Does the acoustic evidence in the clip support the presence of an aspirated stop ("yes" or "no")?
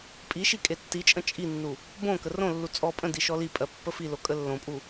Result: no